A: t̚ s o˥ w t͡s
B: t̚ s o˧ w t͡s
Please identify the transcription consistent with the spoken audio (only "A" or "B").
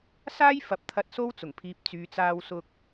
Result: A